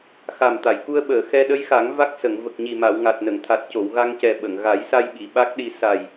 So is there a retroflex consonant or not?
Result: no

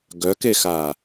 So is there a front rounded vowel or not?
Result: yes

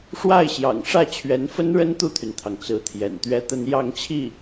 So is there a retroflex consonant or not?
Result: yes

